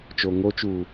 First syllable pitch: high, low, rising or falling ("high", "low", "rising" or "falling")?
low